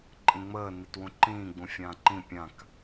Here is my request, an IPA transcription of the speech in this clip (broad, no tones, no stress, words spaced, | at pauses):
ǃʼĩŋ͡məː nitwũǃĩː ɡ͡bũfʲãːǃĩ pʲãk